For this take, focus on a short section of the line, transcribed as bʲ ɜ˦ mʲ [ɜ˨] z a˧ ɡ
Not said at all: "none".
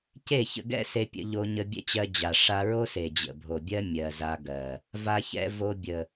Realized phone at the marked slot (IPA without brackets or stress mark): ɜ˨